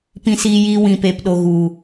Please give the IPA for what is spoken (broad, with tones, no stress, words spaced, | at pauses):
pĩ˧siː˧jiː˧ wĩ˨peː˨pɗo˨ɣu˨